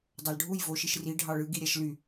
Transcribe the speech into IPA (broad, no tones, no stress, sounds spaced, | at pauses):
dˤ ɑ l ɖʱ u j v o ʃ i ʃ r i ɖʱ ɑ ɭ ɯ ɡ i ɾʲ æ ʃ l y